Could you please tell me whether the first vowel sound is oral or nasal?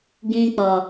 nasal